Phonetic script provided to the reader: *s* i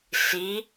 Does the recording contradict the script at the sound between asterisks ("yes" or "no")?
no